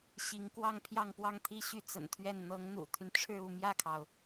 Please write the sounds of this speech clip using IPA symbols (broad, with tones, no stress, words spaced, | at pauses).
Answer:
ɕi˧˥ŋ kwɑ˥˧ŋpʰjɑ˥˧ŋpwɑ˥˧ŋt̪ʰi˥˧ ɕy˥˩t͡sə̰˨˩nt̪ʰɥɛ˥˩n n̪ɤ˧˥ŋn̪ṵ˨˩t̪ʰy˦nʈ͡ʂʰɻ̩˥˧ u˥˧ mjä˥˩kʰɑ˩ʊ̯